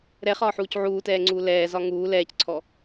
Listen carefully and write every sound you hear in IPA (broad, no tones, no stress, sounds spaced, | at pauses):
ɾ ɛ χ ɒː ħ uː c ʕ uː t ɛː ŋ͡ǀ uː l ɛː z ɒ ŋ uː l ɛː c ǀʰ ɔ